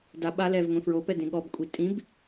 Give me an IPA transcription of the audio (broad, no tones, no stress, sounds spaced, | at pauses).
d a ɓ a l ɛ v ŋʷ ẽ f ɹ o p ɛ d ẽ ɠ ɔ b kʷʼ i tʼ ĩ b